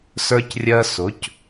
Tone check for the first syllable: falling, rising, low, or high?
high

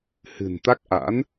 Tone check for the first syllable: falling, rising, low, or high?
low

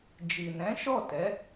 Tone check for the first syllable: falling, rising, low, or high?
low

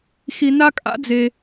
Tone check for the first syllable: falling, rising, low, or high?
low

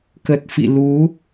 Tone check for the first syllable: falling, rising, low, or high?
low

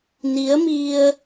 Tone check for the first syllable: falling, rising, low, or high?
rising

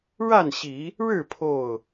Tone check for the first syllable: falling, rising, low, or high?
falling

